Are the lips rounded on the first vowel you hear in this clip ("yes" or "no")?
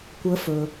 no